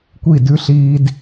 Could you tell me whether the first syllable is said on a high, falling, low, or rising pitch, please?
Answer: falling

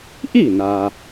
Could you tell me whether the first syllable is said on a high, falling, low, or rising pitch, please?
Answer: falling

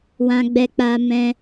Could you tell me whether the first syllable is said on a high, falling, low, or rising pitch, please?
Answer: high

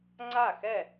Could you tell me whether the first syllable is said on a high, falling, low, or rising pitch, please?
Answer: falling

